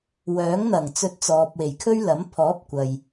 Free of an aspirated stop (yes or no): no